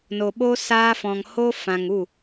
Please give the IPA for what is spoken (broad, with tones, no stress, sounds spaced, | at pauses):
n o˧ ɓ o˦ s aː˦ f ɔ̃˧ ŋ h o˦ f ã˧ ŋ u˦˨